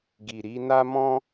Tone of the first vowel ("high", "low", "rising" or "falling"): low